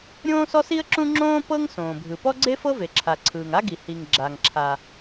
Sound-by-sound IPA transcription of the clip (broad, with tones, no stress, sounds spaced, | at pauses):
ɾʲ õː˥ s ɔ˥ s i˥ ə̯ ǁ ũ˥ ŋ͡ǁ õː˥ p ɤ˥ ŋ s õː˩ bʱ ɯ˩ p ɔ˥ ɡ͡ǀ e˥ f ɤ˥ v e˩ ǁʰ a˩ ǀʰ ɯː˩ ŋ a˥ ɡ i˩ h i˩ ŋ ɡ͡ǁ a˩ ŋ ǁʰ a˩